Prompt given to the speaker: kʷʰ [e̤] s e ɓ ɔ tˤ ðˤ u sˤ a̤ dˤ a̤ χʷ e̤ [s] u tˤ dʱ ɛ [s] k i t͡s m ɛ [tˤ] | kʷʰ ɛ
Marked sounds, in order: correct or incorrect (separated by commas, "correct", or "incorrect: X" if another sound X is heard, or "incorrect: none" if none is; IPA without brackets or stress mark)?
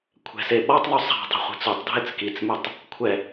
incorrect: ɛ̤, incorrect: t͡s, incorrect: t͡s, correct